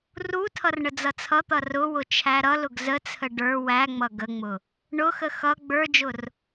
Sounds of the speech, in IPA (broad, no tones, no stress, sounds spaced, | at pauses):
r u tʰ ʌ r ɳ ə d͡z ʌ t͡sʰ ʌ t̪ ʌ r ʊ w ʊ t͡ʃʰ æ ɾ ʌ l ʊ ɡ z ə t͡sʰ ə ɖ ə˞ w æ ŋ͡m ʌ ɡ ə ŋ͡m ʊ | ɳ ʊ x ə x ʌ ɡ͡b ə˞ d͡ʒ ʊ r